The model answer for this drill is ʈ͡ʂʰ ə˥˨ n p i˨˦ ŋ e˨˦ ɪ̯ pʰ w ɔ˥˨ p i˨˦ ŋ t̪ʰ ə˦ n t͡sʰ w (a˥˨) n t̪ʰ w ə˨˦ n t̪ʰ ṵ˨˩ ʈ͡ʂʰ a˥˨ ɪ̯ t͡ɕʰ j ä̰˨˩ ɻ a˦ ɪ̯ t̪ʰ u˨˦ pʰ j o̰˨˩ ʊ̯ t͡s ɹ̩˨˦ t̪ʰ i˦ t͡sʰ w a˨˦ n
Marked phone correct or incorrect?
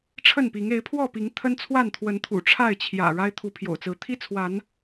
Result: correct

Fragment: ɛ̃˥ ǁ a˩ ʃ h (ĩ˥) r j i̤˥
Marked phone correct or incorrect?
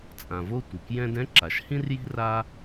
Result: correct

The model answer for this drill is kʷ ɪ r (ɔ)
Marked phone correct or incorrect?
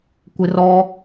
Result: correct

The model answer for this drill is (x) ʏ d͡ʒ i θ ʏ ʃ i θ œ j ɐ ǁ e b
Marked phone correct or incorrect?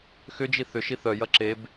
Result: correct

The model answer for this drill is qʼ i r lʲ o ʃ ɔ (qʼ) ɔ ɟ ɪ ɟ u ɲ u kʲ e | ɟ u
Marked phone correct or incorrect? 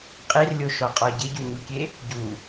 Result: correct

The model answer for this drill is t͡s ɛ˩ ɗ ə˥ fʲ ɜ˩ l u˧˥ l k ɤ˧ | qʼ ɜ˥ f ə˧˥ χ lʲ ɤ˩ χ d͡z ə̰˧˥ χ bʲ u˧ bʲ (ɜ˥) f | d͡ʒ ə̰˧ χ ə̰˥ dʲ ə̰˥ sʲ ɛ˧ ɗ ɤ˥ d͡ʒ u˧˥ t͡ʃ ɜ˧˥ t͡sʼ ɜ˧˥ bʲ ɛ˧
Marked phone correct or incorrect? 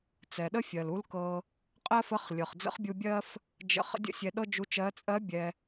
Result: correct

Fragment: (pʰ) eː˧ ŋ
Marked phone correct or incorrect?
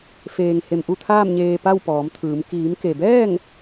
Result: incorrect: f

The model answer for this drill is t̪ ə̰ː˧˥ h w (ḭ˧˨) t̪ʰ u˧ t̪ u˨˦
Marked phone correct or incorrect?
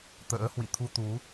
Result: correct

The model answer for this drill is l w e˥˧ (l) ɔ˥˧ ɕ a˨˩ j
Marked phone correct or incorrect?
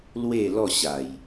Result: correct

